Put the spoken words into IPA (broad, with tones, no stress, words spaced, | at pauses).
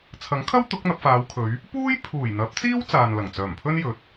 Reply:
t͡sʰɐ˨˥ŋkʰɐ˥w t̪ʊ˨˥k̚n̪ɐ˧p̚faː˨˧wkʰɵ˨˧ɥ | puː˥jpʰuː˨˩jn̪ɐ˨˥p̚t͡siː˥w t͡saː˨nlɐ˨˩ŋt͡sœː˨˩mpʰɵ˥n jɵ˨˥t̚